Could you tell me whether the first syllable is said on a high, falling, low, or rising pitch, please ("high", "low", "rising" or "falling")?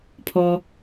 low